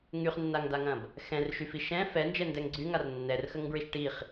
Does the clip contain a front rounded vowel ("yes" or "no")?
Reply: yes